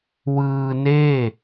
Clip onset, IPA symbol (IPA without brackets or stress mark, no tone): w